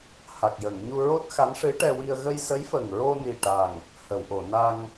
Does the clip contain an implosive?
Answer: no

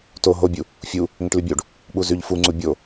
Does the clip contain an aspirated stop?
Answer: no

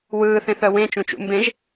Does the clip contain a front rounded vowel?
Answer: yes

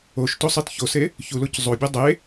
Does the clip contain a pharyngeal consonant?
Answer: no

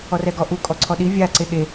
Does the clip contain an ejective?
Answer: yes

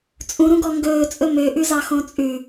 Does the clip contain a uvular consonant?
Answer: no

